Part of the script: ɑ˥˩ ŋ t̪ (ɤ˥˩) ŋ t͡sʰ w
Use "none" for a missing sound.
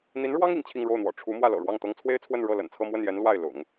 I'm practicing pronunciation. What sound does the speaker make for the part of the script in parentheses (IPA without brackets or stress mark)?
ɤ˥